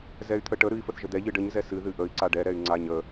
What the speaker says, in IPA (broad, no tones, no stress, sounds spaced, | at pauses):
z ɛ y̯ t̪ʰ ə ʈ ə ɾ ɨ i̯ f ə θ ʒ ə d̪ ɛ ʎ ɨ ɖ ə ɲ z ɛ s ɨ ð ɨ ʔ ə i̯ ǀ a ɖ ɛ ɾ ɛ y̯ ŋ͡ǀ a ɲ ə